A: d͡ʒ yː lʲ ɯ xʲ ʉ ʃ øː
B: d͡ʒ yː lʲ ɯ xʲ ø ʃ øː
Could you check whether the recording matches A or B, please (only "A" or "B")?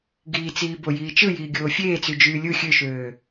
B